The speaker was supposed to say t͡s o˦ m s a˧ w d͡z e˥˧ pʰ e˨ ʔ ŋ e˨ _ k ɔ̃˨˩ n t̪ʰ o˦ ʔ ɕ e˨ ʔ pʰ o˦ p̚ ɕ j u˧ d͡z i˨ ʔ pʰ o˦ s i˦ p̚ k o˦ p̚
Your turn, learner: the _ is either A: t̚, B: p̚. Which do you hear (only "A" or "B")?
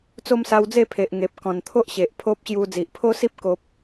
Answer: B